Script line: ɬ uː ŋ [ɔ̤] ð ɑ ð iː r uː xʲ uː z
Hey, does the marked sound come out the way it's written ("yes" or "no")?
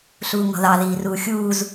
yes